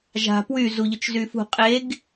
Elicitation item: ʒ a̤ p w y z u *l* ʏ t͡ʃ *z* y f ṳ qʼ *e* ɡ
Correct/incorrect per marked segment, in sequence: incorrect, correct, correct

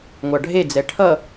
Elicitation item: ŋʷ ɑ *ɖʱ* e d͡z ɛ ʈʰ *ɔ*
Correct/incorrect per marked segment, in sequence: correct, incorrect

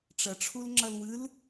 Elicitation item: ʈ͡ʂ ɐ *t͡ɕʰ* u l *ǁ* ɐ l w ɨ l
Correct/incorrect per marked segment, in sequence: incorrect, incorrect

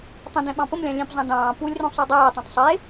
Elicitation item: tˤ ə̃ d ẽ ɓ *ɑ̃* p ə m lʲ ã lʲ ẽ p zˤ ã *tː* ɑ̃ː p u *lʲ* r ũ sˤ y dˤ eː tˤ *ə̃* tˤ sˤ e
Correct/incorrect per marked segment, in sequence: correct, incorrect, correct, incorrect

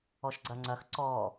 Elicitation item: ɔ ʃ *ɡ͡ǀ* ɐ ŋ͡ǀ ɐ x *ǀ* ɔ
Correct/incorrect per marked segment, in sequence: correct, correct

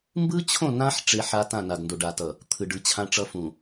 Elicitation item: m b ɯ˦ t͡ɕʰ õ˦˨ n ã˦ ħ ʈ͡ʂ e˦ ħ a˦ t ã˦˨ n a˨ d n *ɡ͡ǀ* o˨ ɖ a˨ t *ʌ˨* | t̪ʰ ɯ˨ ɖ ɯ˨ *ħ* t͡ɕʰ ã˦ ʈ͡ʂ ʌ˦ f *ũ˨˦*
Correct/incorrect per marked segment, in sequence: incorrect, correct, incorrect, incorrect

